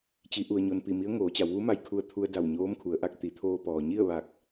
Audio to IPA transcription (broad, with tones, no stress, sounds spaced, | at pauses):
t͡ɕ i˩˧ ʔ u˩ ə̯ ɲ o˩ n p i˧˩ m i˧˥ ə̯ ŋ oː˩˧ t͡ɕ a˩˧ w ʋ u˧˥ m a˧ j kʰ u˧ ə̯ t̪ʰ u˧ ə̯ d a˧˩ w ɲ oː˧˥ m kʰ u˩˧ ə̯ ʔ a˧ k̚ t̪ i˩˧ t̪ʰ oː˧ p ɔː˩ ɲ i˥˨ ə̯ ʋ a˧˩ k̚